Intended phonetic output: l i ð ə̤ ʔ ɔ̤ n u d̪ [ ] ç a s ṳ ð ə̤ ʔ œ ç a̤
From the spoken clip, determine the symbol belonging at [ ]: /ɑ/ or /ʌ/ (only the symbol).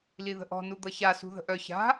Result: ʌ